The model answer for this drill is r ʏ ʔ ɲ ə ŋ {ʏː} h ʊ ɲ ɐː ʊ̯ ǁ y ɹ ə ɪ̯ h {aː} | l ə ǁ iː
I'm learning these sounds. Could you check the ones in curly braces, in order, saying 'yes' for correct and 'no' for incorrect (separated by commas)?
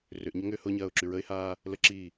yes, yes